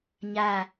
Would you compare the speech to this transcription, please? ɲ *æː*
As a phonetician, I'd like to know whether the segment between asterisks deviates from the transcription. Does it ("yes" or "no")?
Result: yes